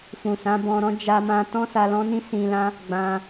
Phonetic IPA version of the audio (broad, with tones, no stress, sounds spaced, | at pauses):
f ũ˨ s ã˨˦ b ɔ̃˧ ɾ ɔ̃˦ d͡ʒ a˧ m ã˧ t ɔ̃˦ s a˧ l ɔ̃˦ n ĩ˦ s ĩ˧ l ã˦ | ɡ͡b ã˧